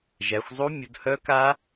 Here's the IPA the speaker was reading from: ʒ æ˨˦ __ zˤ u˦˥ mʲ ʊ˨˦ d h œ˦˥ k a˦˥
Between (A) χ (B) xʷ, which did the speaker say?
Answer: B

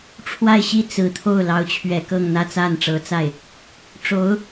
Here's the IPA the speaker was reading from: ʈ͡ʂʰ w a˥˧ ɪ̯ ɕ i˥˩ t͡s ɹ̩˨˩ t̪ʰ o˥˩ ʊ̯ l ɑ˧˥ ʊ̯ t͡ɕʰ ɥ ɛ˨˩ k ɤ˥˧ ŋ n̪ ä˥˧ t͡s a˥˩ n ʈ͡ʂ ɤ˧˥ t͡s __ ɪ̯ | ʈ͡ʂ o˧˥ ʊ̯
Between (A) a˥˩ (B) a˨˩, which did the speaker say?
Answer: A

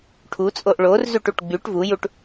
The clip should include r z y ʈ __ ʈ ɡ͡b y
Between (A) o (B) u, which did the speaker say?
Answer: B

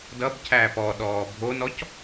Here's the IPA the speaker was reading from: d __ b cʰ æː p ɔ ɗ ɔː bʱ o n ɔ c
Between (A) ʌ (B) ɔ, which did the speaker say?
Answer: A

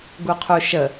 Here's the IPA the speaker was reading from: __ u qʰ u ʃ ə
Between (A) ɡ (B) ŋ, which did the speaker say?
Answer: A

